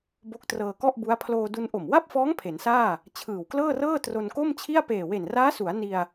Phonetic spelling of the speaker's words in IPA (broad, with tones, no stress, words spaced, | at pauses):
bo˦˥k̚trɤː˧kɔ˥˩ʔbu˦˥a̯ pʰloː˧du˧n ʔo˨˩mwa˥˩p̚fɔː˦˥ŋ pʰe˩˦nsaː˥˩ | t͡ɕʰɯː˨˩wklɤː˥˩rɤː˥˩ tro˧nko˥˩mt͡ɕʰi˥˩a̯ peː˨˩we˨˩nraː˦˥su˩˦a̯ ni˧a̯